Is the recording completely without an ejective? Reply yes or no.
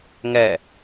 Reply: yes